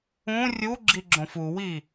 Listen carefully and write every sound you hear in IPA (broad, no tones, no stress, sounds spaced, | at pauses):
ũ rʲ u ɡ͡ǁ i ɡ͡ǁ õ f u w i